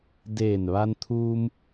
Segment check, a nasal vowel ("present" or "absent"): absent